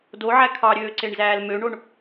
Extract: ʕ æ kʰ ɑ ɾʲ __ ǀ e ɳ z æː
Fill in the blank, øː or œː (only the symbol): øː